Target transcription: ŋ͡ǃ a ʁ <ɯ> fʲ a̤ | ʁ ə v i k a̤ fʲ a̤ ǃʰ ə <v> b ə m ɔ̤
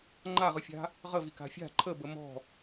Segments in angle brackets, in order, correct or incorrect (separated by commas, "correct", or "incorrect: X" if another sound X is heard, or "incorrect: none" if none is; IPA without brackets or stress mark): correct, incorrect: none